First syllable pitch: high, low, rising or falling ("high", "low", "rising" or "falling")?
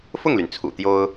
falling